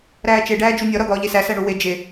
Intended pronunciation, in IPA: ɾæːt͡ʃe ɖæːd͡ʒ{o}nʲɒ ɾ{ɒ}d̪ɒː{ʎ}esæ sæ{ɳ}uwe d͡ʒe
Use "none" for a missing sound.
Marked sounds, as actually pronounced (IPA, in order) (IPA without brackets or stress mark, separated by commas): u, ɒ, ʎ, ɳ